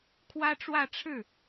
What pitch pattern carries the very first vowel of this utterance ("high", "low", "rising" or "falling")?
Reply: high